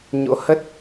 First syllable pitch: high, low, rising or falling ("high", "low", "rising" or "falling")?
rising